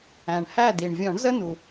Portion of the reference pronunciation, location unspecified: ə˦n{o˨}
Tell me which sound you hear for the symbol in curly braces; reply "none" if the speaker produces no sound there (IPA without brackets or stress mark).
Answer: u˨